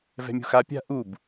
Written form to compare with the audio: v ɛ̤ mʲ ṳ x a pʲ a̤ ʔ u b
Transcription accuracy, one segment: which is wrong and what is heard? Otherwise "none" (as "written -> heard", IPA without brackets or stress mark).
none